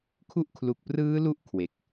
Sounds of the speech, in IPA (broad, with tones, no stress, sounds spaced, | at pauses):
kʰ u˦˥ ʔ kʰ l u˨˩ k̚ p r ɯː˦˥ l u˦˥ ʔ kʰ w e˨˩ k̚